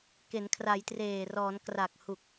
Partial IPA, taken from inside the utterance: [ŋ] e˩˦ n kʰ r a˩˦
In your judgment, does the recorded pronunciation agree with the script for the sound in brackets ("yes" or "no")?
no